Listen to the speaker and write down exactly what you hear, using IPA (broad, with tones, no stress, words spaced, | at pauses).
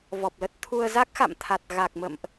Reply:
vɔ˨˩p̚lə˦˥t̚t̪ʰu˧ə̯ za˦˥k̚xa̰˧˨mt̪ʰa˨˩t̚ ɣa˨˩k̚mə̰˧˨mʔ